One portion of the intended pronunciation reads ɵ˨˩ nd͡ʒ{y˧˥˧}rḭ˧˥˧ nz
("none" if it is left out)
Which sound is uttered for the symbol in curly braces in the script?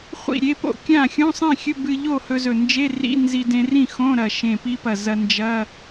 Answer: e˧˥˧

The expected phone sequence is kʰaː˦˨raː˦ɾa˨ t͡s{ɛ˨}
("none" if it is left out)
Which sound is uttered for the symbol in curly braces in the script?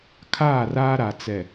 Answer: ɛ˨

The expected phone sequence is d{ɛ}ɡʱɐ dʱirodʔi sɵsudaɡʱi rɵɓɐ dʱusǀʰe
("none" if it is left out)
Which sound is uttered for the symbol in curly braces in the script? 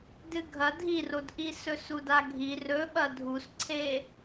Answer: ɨ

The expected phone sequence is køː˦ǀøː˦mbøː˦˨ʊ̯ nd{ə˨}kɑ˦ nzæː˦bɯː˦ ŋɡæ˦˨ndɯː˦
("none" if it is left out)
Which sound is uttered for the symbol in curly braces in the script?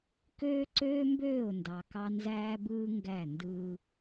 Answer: ɑ˨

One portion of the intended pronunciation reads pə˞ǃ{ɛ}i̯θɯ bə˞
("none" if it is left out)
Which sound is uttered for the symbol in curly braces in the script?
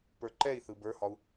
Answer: ɛ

